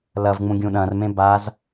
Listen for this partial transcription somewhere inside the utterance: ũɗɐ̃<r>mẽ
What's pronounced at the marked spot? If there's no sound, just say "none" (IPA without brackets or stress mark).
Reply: r